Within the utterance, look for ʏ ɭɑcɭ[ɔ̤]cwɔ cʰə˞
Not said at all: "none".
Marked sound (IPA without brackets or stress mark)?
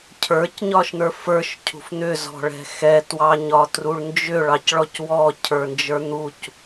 ɔ